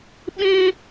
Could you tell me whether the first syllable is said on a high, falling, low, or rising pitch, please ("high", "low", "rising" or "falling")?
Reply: high